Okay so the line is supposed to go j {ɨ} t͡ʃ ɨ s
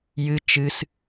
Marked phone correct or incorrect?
correct